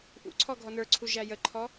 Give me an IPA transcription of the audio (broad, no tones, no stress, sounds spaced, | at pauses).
ʔ ṵ ǀʰ ɔ ɡʱ ɔ n ə˞ ǀʰ u ʒ æ j ə ǃʰ ɔ